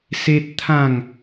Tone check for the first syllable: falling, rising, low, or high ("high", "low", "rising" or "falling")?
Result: high